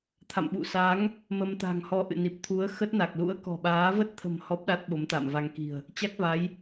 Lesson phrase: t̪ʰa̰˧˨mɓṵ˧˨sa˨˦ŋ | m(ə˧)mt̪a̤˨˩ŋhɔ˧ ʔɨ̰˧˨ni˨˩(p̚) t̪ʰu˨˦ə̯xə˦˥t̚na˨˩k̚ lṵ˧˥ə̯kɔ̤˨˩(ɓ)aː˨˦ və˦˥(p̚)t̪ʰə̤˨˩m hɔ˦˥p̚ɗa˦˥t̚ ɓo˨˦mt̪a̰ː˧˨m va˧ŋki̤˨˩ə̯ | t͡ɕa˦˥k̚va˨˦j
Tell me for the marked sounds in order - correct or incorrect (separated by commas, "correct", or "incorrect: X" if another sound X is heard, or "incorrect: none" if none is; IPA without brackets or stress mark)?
correct, correct, correct, incorrect: t̚